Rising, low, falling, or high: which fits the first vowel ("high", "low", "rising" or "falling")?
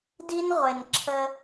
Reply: high